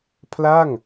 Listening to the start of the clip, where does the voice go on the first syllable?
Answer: falling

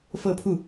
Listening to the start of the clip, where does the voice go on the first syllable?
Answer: falling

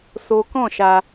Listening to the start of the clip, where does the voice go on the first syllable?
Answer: high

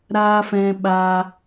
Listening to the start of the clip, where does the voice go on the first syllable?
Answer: high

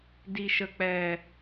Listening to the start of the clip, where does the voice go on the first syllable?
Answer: low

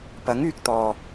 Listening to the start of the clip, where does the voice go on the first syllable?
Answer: rising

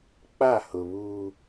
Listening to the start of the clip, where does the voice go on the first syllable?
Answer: falling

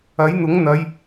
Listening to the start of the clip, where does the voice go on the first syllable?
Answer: rising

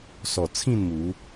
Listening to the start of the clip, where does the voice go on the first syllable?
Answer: low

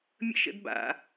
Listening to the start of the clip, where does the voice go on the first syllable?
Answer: high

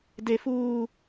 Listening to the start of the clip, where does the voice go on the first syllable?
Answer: high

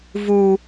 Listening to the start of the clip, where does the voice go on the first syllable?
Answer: high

